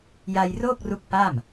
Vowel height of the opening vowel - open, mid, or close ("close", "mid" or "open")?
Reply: open